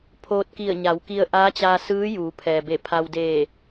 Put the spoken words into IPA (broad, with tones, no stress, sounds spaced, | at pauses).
pʰ oː˧ t̚ k i˧˩ ə̯ ɲ a˩˧ w k i˧ ə̯ ʔ aː˧˥ t͡ɕ aː˧ s ɯː˧˥ j uː˩˧ pʰ ɛː˩ b e˧˩ pʰ a˧ w d eː˧˩